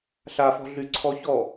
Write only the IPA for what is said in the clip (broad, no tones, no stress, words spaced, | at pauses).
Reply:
ɬafɔ̤ ɮyǀʰɔçɔ